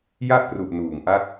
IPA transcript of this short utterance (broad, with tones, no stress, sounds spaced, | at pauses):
j a˥˩ ʔ p r u˨˩ ʔ n uː˨˩ ŋ ʔ a˥˩ k̚